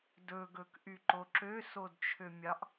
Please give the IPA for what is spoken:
dɵɡɵkʔyǃo ǁøsodt͡ʃʰømʲɑʔ

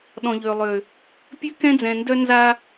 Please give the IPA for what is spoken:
ɗɔ̃˨ʎø˨lˠø˨ | pʲø˦kɛ̃˦d͡zɛ̃˨ndœ˦ nza˦

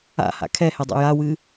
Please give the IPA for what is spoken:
a̰ha̰ kʰɛhɛdˤa̰ jawɨ

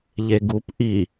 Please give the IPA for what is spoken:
ʎeɡup ʔi

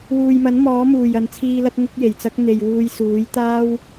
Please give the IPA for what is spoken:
wuː˨jmɐ˨˥n mɔː˨˥muː˨˩jɐ˨nt͡sʰiː˧ lɐ˥t̚ŋʊ˥k̚je˨˩jt͡sɐ˥k̚ n̪e˨jwuː˧j suː˨˥jt̪aː˥w

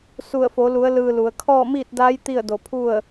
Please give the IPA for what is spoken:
su˧˩ə̯fo˩˧lu˩˧ə̯ lɯː˧lu˩˧ə̯ kʰɔː˥˨miː˥˨t̚daː˧˥j t̪i˥˨ə̯do˧˩pʰu˥˨ə̯

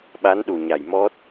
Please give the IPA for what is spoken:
ɓa˧˥nɗu˨˩ɲa˨˩jmɔ˦˥t̚

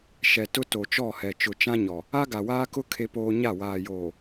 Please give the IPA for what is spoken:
ʃɛ˨tʊ˦ to˨t͡ʃɔ˦˨hɛ˨ t͡ʃʊ˨t͡ʃã˦ɲɔ˨ | a˦ɡa˨waː˦ kʊ˦ kʰe˦ poː˦ ɲa˦˨ waː˨joː˨

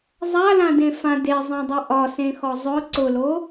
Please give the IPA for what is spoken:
zˤalãdẽfã dezˤẽdˤi ʔɒsẽxɔ zˤʊ ǀʊlo

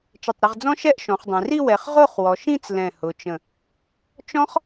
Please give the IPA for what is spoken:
t͡ʃɪ˧˩tˤɾə˧ʁd͡zɔ̃˥ ʃɛ˥˧ʔʃɔ̃˩˧χdˤẽ˩˧ri˥˧ wɛ˩˧χ ʁo˥˧χwɔ˩˧ʃĩ˥˧t͡s lɛ̃˧˩hʊ˩˧t͡ʃə̃˧˩ | t͡ʃɔ̃˥χ

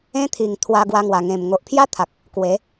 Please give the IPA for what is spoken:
ẽ˦t̪ʰi˨˩ŋ t̪ʰwa˧ɡwa˧ŋwa˨˩ ŋẽ˨˩m ŋo˨ʔpʰja˦t̪ʰa˨k̚ | kwe˨˦

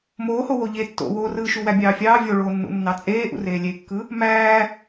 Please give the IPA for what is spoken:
moːho woʎe tːo̰woːrɯːʃu wæbʲɑːfʲɑː vʲoɭoːnːṵnːɑ t͡sʼeːʔṵreː lʲekːɯ | mæː

